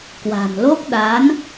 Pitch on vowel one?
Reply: low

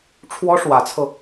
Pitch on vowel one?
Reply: high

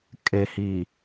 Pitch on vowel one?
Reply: low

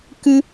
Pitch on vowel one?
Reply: high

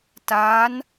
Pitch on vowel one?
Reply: rising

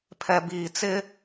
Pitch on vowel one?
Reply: low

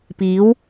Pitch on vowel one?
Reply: rising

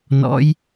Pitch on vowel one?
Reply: rising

